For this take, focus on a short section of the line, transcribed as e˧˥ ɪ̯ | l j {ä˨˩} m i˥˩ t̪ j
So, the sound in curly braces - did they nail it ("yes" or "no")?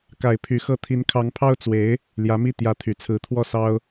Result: no